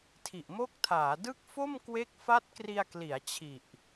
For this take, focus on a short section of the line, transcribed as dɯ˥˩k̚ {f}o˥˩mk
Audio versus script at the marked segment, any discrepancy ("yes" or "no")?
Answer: no